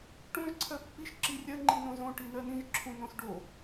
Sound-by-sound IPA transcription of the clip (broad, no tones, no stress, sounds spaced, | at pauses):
ʈ õ ʒ ǀʰ ɜ pː i ʃ ǁ i rʲ ɜ ŋ͡ǃ i n õ z õ ʈ i n ɜ n ĩ ʒ ǁʰ ũ n õ s ɖ o